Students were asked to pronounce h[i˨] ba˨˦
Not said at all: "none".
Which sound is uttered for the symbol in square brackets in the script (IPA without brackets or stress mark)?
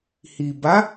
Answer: i˨